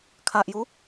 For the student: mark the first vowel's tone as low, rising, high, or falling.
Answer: low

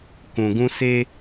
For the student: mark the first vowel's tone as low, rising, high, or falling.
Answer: low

